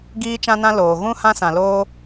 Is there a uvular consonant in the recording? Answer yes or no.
no